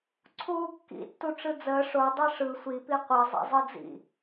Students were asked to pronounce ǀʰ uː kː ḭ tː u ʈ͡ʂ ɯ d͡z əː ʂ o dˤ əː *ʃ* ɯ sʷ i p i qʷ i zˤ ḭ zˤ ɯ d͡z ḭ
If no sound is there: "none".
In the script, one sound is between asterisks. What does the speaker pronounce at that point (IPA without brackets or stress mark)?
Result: ʂ